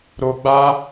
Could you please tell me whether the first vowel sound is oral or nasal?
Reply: oral